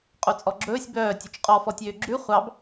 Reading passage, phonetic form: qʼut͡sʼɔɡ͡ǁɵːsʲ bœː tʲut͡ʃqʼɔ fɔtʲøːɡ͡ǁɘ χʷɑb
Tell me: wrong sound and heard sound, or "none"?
ɘ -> ʉ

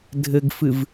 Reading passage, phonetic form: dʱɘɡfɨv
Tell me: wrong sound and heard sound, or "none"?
none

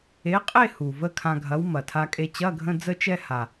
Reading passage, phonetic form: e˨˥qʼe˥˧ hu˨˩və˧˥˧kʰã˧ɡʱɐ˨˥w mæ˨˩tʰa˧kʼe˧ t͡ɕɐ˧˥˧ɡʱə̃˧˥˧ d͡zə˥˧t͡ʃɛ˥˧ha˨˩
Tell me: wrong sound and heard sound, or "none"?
æ˨˩ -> ɐ˨˩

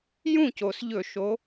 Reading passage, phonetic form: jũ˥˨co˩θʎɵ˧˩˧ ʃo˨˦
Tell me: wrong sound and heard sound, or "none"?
θ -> s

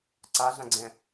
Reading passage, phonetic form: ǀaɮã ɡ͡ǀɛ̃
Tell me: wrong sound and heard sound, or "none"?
none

